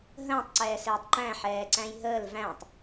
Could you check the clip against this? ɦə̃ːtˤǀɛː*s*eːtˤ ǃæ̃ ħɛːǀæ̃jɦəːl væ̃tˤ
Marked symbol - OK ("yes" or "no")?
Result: yes